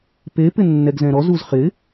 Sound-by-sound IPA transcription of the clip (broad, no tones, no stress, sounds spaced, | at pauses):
p e p ɪ nː ɛ ɡ z ɛ̃ ɾ ɔ z u z χ ɪ